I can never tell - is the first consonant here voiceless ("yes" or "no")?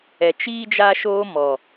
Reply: yes